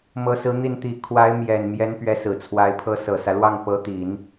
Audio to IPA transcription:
m ɤ˧˥ s ɹ̩˧˥ n̪ i˥˩ n t̪ i˧˥ kʰ w a˧˥ ɪ̯ m j ɛ˨˩ n m j ɛ˧˥ n p ɥ ɛ˧˥ s ɹ̩˨˩ t͡sʰ w a˧˥ ɪ̯ pʰ ɤ˧˥ s ɤ˨˩ s ä˦ l w ɑ˥˩ ŋ p ɤ˧˥ t̪ i˨˩˦ n

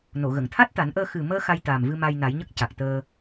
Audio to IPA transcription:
n o˨˩˨ ɣ ə˨˩˨ ŋ t̪ʰ a˦˥ t̚ t̪ a˨˩˦ n ʔ əː˧ x ɨ˨˩ m əː˧ x a˧ j t̪ aː˨˩ m v ɨ˧ m a˧ j n a˨˩˦ j ɲ ə˦˥ k̚ c a˨˩ k̚ t̪ əː˧

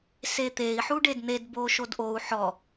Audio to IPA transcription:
s e t̪ e i̯ ħ u ɖ e d n̪ e d b o ʃ o d ʔ o u̯ ħ ɔ

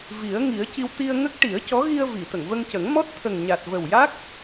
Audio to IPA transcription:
v i˨˩˦ ə̯ ŋ i˨˩˦ ə̯ c i˧ w t̪ i˧ ə̯ ŋ ə˦˥ k̚ ʈ i˨˩˦ ə̯ c ɔ˧˥ ɣ i˧ ə̯ v i˨˩˨ t̪ ə˨˩˨ ŋ v ə˧ ŋ c ə˨˩˦ ŋ m ɔ˦˥ t̚ t̪ʰ ə˨˩ ŋ ɲ a˨˩ t̚ v ə˨˩ w j a˦˥ k̚

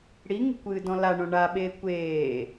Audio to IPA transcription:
ɽ i ŋ ṳ kʷ ɨː d ɔ̃ l a ɳ õ ɳ a ɓ eː kʷ eː

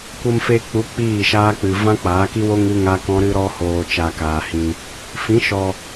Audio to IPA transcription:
kʷ ə˧ m f e˧ k͡p u˨˦ k͡p iː˦˨ ʃ aː˦ k͡p ɨ˨ v ã˦ k͡p aː˨˦ k i˦ w o˦ ŋ ɨ˦ ŋ a˦ k ɔ̃˦ ɾ ɨ˧ ɾ ɔ˧ h oː˨ t͡ʃ a˧ k aː˨ h ĩ˧ | f ĩ˨˦ ʃ ɔ˨

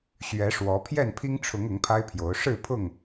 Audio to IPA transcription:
ɕ ɥ ɛ˨˦ ʂ w ɔ˨˦ pʰ j ɛ˥˨ n pʰ i˦ ŋ ʈ͡ʂʰ ʊ˨˦ ŋ ʊ˨˦ ŋ pʰ a˦ ɪ̯ pʰ j o˨˦ ʊ̯ ʂ ɻ̩˥˨ pʰ ʊ˥˨ ŋ

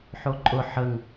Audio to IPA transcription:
ħ o ǃʼ ʊ ħ ə ŋ

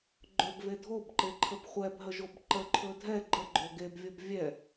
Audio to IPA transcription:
ɡ͡ǃ ɵ b v e dʱ o b ǃ e ǃʰ ə b χʷ ɛ b ɦ ə ʒ o b ǃ ə ǃʰ ɵ dʱ ɛ ɡ͡ǃ ə ɡ͡ǃ o ɡ e b vʲ o b vʲ ɛ

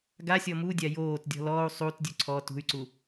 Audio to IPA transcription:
ɡ a sʲ ɔ m u dʲ a j oː t dʲ ɔ̤ l ɔː u̯ sˤ u t dʲ u ǀʰ ɔ t ṳ y̯ ǀ u

